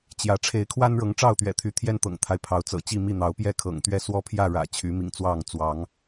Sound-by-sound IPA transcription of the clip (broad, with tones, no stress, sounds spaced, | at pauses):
t͡ɕ j ä˨˦ ʈ͡ʂʰ e˨˦ ɪ̯ kʰ w a˦ n ɻ ɤ˨˦ ŋ ʈ͡ʂ ɑ˥˨ ʊ̯ t̪ ɥ ɛ̰˨˩ t̪ʰ y˨˦ t̪ʰ j ɛ˦ n t̪ ɤ̰˨˩ ŋ t̪ʰ a˦ ɪ̯ pʰ ɑ˨˦ ʊ̯ t͡s ɤ̰˨˩ t͡ɕ i˥˨ m i˥˨ n̪ ɑ˨˦ ʊ̯ p j ɛ˥˨ kʰ ɤ̰˨˩ ŋ t̪ ɥ ɛ˥˨ s w ɔ˦ pʰ j ä˥˨ ɻ ä̰˨˩ t͡ɕʰ y˨˦ m ḭ˨˩ ŋ t͡s w ɑ˥˨ ŋ t͡s w ɑ˨˦ ŋ